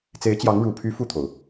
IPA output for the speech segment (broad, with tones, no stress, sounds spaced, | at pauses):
t͡s e˧˥ ɪ̯ t͡ɕ j ɑ˧˥ ŋ ɻ u˨˩ pʰ y˧˥ f u˥˩ t̪ʰ o˩ ʊ̯